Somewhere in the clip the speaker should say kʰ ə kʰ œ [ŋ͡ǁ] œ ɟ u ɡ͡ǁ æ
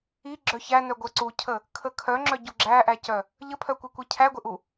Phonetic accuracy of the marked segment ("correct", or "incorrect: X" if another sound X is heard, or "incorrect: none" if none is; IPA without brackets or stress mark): correct